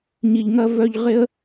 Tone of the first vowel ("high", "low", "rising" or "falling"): low